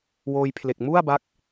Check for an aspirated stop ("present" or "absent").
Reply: present